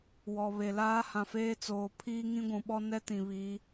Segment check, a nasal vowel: present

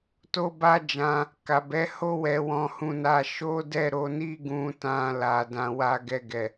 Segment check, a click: absent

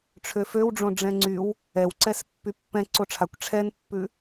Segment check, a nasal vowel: present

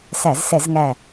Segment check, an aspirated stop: absent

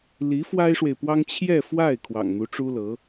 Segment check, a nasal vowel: absent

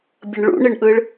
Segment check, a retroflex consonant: present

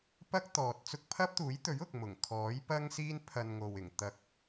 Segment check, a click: absent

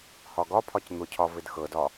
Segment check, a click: absent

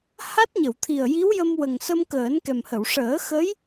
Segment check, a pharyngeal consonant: absent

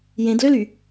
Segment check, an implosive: absent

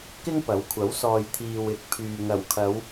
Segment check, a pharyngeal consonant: absent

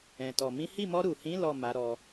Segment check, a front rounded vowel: absent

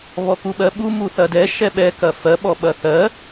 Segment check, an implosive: present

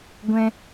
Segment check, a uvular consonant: absent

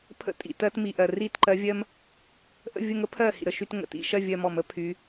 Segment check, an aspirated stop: present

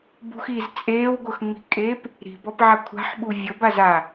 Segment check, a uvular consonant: absent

